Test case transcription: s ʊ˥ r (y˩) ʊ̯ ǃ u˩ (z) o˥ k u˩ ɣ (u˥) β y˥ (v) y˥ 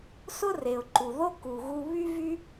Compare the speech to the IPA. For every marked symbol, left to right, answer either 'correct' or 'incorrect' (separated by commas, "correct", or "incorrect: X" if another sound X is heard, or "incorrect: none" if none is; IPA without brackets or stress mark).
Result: incorrect: e˩, incorrect: ð, incorrect: u˧, correct